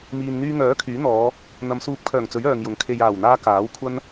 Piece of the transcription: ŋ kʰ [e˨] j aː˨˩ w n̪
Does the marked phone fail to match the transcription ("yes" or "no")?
no